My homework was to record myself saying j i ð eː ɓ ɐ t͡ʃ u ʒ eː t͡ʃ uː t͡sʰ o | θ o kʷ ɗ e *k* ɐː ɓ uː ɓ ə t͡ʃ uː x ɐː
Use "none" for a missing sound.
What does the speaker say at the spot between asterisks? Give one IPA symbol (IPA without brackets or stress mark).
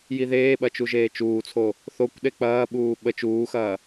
k͡p